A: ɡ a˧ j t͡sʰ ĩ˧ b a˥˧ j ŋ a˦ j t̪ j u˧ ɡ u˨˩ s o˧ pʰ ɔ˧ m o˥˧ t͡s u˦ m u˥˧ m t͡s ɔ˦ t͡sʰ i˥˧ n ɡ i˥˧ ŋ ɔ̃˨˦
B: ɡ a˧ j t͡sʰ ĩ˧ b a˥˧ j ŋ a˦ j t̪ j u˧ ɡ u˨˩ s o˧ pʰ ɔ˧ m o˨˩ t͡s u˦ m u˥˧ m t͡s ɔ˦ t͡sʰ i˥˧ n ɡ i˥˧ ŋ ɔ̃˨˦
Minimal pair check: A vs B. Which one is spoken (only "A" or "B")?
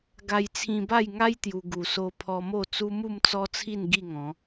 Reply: A